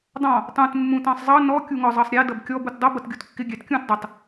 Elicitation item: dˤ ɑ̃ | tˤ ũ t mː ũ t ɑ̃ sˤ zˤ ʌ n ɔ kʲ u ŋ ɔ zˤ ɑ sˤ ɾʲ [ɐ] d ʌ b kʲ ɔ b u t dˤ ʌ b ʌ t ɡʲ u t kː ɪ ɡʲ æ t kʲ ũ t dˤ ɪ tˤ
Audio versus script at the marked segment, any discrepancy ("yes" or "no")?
yes